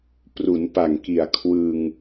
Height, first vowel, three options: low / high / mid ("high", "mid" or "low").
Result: high